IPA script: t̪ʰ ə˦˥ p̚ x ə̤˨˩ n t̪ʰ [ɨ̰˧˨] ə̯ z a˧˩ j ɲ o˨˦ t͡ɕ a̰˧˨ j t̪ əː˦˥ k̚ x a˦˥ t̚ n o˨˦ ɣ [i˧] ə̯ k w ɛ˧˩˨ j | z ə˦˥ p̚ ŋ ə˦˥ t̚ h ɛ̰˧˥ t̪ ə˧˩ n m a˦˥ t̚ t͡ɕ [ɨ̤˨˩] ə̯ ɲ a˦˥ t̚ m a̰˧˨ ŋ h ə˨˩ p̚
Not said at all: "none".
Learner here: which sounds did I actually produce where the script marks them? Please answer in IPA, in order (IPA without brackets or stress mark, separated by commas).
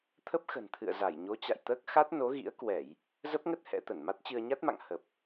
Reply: ɨ̰˧˨, ḭ˧˥, ɨ˧